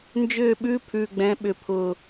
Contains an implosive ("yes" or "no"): yes